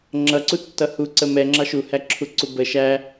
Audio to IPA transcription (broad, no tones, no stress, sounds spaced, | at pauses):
ŋ͡ǁ ʌ ǀ u tː ʌ h u ǀ ə m ɛ ŋ͡ǁ ɑ ʃ u h æ ǁʰ u ǀ u b ə ʃ æ